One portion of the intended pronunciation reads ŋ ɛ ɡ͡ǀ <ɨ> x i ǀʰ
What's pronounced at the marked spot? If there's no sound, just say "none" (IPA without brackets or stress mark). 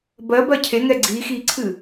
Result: i